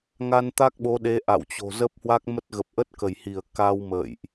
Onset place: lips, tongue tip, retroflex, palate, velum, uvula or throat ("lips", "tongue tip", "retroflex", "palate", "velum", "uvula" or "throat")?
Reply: velum